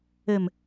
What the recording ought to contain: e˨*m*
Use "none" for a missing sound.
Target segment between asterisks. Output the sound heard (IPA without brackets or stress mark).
m